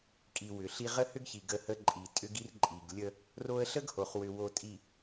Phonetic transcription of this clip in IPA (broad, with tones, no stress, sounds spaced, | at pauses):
kʼ i˨ w ʏ˨ ɬ i˦ ʁ ə˦ h ʏ˦ ɡ ç i˨ ɡ ə˦ h ə˦ ǃʼ i˨ tʼ ʏ˦ ɡ i˦ r ǃʼ i˨ ɡ lʲ ə˦ | r o˦ ə̯ ɬ ə˦ ɡ h o˨ χ w ʏ˨ w o˨ tʼ i˨